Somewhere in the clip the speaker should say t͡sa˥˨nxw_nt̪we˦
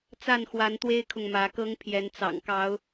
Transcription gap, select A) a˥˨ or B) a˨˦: B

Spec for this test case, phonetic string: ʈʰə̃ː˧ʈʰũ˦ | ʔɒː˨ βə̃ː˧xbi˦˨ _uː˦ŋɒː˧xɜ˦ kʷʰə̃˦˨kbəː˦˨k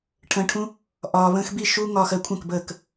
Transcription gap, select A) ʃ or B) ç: A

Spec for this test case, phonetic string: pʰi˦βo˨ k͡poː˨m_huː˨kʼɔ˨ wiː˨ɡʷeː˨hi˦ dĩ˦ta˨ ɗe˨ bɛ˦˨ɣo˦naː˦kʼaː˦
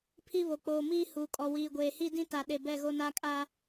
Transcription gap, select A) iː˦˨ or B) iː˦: B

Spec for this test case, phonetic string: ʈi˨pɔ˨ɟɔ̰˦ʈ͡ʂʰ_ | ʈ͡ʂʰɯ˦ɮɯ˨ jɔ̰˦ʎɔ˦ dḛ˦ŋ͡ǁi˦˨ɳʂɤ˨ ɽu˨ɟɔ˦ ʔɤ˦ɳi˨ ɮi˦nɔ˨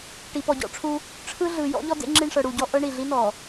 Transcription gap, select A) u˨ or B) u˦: B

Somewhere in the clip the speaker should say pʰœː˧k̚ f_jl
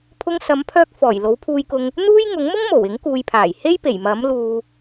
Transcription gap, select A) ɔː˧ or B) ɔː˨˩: B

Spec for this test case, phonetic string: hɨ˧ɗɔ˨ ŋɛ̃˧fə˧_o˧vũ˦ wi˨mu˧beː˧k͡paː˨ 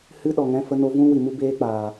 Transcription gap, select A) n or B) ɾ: A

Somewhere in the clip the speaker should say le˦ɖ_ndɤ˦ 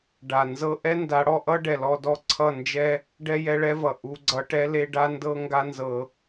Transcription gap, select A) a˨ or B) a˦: B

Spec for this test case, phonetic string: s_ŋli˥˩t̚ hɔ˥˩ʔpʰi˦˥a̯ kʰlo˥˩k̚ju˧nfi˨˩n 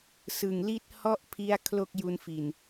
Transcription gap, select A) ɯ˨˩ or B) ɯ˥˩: A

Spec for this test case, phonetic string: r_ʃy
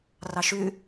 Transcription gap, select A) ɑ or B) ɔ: A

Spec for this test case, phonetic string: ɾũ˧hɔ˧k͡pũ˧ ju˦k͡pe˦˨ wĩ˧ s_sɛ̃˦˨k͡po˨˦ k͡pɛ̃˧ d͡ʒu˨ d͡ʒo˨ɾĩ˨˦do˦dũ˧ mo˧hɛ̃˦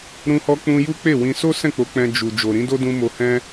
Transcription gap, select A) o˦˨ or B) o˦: B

